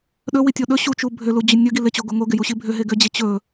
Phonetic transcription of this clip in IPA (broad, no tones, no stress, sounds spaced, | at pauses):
ɗ ɵ w i tʲ o ɗ ɵ ɕ u t͡ʃ u bʱ ʏ l u d͡ʑ ʏ nʲ ɵ ɡ i l ɪ t͡ɕ o ɡ o ŋ o ɡ ɪ j u ɕ i bʱ ʏ ɦ e ɡ ʏ d͡ʑ ɪ t͡ɕ ɵ